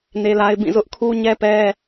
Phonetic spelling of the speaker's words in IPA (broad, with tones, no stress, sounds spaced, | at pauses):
n e˦ l a˦ ɪ̯ b ĩ˦˨ z ʊ˦ ʔ kʰ u˦ ɲ ɛ˦ p ɛ˦